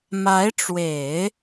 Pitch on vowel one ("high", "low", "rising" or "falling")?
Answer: rising